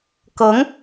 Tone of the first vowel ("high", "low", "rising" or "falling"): rising